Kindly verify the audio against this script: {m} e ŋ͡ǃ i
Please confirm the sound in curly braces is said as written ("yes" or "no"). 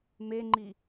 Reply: yes